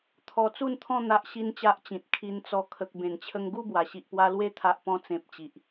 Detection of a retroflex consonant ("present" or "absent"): absent